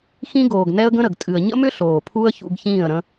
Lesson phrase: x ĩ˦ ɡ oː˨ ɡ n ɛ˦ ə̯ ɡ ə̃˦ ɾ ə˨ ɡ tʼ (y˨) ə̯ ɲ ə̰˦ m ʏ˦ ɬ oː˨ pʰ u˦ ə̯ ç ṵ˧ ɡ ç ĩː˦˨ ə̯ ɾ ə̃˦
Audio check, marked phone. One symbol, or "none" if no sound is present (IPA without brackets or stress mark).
ɨ˨